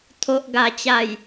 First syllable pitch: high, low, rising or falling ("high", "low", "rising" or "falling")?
low